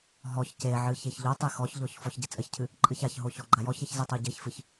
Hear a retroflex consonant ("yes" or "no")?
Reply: no